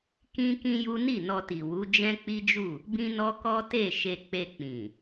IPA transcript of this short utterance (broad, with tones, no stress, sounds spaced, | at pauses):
k ĩ˦ k ĩ˦ j u˦ n i˦˨ n ɔ˧ t i˨ w u˨˦ d͡ʒ ɛ̃˦ k͡p i˦ d͡ʒ u˦˨ | b ĩ˦ n ɔ˦ k ɔ˦ t e˦˨ ʃ e˧ k͡p e˧ k͡p ĩ˨